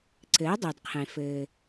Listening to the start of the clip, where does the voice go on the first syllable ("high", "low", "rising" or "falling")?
rising